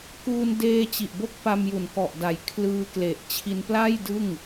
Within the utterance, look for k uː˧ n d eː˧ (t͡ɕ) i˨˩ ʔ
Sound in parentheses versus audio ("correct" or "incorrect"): correct